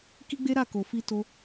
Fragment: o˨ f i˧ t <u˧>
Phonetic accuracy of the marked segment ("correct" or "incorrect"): incorrect